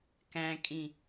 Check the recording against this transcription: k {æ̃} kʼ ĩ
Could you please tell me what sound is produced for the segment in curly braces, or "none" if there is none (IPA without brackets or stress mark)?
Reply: æ̃